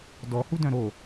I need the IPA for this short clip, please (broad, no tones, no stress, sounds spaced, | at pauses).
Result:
d ɔ h u d œ̃ ɾ o